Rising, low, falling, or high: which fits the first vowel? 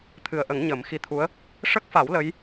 low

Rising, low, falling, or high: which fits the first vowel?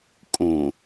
low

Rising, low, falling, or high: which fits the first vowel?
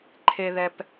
high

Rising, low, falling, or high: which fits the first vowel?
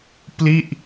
falling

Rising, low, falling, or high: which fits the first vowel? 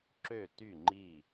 falling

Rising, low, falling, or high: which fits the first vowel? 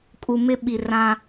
low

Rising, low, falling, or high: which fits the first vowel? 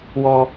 high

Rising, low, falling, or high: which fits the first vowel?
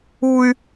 high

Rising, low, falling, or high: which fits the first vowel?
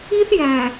high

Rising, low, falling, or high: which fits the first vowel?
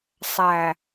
low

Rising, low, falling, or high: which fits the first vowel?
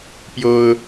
high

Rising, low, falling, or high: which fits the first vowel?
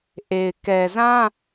low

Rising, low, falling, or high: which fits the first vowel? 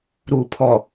low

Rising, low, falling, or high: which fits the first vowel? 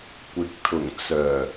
rising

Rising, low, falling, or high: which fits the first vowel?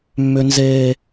high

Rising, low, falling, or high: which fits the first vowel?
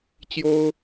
high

